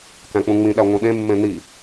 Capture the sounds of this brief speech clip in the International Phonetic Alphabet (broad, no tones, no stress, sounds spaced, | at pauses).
k æ̃ k͡p ũ ŋ͡m ĩ ɗ æ ŋʷ ĩ ɗ ẽ mː ẽ n i